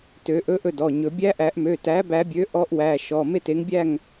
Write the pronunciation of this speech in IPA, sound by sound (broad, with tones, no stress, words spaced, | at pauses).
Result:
tø˨˩˦ ʔɵ˧˥ʔɵ˥˩dɔ˩˧˩ɲɵ˨˩˦ bʲæ˧˥ʔæ˨˩˦ʔmø˩˧˩ tæ˩˥bæ˨˩˦bʲø˩˥ ʔɔ˧˥ʔwæ˩˧˩ ʃɔ˩˧˩ me˥˩te˩˥ŋbʲæ˥˩ŋ